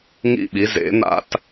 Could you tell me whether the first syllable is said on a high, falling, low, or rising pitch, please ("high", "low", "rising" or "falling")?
falling